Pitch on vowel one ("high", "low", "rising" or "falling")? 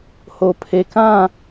low